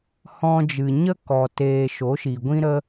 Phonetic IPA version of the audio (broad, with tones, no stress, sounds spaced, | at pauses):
h ɔ̃˧ d͡ʒ ɨ˨ ɲ ə˦ k ɔ˨ t eː˨ ʃ o˨˦ ʃ i˨ ɡʷ ĩ˦ ɾ ə˦